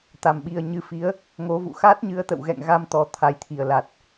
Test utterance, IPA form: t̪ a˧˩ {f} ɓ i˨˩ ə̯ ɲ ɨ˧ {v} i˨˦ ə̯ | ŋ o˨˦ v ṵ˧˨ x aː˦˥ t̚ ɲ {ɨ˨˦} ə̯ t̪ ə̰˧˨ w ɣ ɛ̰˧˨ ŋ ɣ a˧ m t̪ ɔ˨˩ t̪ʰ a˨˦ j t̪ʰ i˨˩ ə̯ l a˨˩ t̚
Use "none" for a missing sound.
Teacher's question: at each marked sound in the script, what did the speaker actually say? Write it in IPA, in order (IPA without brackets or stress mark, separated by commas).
m, f, ɨ˨˦